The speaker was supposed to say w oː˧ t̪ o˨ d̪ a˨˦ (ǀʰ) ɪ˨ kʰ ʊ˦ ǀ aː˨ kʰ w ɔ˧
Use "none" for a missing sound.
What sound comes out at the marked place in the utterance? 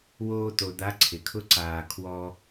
ǀʰ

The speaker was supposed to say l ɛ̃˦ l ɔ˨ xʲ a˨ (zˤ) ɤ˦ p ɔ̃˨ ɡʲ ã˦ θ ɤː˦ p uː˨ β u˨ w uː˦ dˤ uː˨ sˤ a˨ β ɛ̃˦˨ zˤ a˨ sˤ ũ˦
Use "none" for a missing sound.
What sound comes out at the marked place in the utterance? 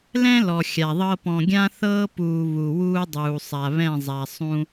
ðˤ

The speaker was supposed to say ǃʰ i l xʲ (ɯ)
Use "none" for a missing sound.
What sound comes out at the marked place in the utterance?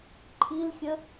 ə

